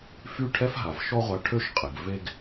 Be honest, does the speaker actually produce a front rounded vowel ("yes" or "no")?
yes